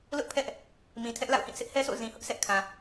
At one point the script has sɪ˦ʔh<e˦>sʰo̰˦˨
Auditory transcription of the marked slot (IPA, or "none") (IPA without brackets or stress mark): ɛ˦